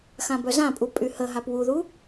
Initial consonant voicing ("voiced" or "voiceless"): voiceless